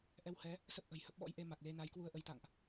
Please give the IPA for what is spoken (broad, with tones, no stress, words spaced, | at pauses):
ʔɛ˧whɛ˨˦ | sə˦˥p̚ʔə̤˨˩jhə˦˥p̚ɓɔ̰˧˥j ʔe˧ma˨˩k̚ le˧na˨˦j kwu˧ə̯ʔə˨˦jt̪a̰˧˨ŋʔ